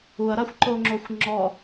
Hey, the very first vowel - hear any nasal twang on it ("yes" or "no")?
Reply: no